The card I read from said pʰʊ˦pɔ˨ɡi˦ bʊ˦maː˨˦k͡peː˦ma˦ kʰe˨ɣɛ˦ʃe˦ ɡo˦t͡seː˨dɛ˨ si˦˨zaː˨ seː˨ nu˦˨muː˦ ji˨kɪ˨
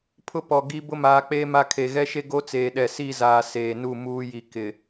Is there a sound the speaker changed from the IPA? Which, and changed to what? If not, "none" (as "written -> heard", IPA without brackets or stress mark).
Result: d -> ɗ